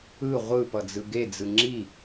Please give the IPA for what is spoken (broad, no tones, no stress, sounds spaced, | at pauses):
ɯ ʁʷ ɯ p ʌ d͡z ɯ ɡ e d͡z ɯ ŋ͡ǁ i